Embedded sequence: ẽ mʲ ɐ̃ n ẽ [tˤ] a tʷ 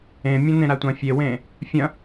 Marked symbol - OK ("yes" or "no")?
no